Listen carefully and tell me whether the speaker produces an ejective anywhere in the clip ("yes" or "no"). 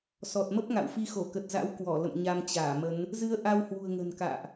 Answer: no